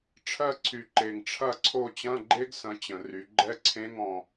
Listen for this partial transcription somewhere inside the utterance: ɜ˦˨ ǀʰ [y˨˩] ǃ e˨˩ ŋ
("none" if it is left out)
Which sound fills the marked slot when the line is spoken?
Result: y˨˩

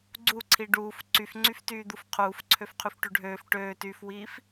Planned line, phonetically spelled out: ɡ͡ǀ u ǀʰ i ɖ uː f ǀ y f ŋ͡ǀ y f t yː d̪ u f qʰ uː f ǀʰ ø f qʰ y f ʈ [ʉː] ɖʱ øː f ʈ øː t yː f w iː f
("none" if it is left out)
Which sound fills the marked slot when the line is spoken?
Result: ʉ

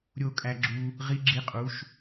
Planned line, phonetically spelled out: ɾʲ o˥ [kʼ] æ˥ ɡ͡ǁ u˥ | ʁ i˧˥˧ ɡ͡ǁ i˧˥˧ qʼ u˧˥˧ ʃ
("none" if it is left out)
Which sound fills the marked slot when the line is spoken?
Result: kʼ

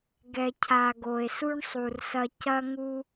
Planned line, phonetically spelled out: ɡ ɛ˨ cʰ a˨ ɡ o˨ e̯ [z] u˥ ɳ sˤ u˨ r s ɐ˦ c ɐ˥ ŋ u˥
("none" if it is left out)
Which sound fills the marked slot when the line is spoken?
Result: s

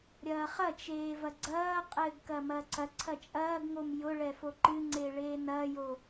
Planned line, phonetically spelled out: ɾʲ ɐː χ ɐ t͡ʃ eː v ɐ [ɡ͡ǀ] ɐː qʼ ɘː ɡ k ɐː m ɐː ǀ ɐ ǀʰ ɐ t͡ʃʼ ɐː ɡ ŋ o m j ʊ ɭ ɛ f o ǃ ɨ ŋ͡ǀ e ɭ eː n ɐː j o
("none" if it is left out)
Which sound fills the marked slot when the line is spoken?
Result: ɡ͡ǀ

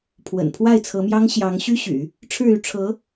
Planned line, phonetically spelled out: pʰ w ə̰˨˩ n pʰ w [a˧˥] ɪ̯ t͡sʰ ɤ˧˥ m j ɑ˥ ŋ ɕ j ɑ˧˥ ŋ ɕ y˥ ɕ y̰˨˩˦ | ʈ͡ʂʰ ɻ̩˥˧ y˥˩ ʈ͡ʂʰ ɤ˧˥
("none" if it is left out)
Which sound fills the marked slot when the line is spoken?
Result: a˥˩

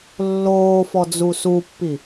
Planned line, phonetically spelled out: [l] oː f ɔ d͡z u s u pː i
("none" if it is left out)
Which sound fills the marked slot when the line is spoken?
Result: lː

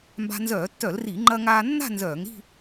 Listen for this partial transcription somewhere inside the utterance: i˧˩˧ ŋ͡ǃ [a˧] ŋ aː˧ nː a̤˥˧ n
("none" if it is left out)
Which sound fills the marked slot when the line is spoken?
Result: ɐ˧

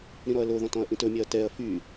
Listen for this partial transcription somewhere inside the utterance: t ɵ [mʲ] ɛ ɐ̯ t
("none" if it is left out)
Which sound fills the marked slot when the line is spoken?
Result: mʲ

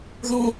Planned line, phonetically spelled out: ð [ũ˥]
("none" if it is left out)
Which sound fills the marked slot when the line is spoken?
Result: ũ˥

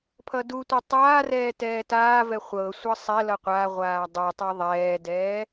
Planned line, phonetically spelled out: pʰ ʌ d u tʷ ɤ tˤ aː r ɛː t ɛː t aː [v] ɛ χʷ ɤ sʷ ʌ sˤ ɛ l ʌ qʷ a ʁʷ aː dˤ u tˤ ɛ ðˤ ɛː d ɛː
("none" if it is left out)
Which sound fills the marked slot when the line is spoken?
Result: v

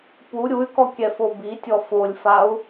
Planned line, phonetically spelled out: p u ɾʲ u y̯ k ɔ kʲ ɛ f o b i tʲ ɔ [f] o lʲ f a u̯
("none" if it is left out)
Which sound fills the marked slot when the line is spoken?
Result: f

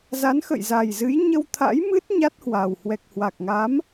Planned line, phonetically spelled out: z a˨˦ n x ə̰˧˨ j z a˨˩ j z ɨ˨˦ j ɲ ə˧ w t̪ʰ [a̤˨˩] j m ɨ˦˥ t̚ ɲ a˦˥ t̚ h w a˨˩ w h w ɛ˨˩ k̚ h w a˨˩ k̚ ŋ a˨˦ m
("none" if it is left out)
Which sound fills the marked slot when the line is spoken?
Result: a̰˧˥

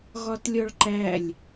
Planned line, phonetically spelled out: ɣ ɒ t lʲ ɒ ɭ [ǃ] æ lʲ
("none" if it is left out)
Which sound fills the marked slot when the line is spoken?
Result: ǃ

